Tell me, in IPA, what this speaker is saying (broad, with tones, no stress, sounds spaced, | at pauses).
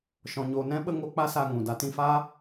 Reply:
ʃ ɔ̃˧ ɲ oː˧ n ɛ̃˦ ɓ ə˧ ŋ o˧ k͡p a˦ s a˧ ŋ ũ˨ d a˧ t ĩ˧ f aː˦